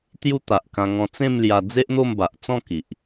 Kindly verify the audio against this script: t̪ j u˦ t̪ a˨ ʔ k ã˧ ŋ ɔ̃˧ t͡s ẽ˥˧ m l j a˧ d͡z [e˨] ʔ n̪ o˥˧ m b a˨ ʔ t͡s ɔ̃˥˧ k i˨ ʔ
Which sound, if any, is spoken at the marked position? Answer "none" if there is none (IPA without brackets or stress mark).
e˦